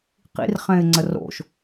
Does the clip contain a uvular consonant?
yes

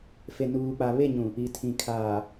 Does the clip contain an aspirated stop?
yes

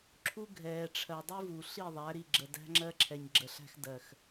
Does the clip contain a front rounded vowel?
no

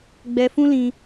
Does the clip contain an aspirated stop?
no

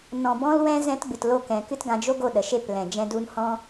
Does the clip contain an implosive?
yes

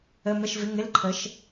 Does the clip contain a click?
yes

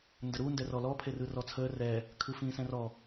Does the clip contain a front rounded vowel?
no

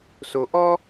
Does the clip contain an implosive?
no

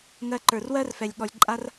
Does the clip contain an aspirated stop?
no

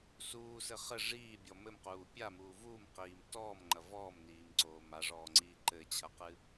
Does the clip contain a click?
yes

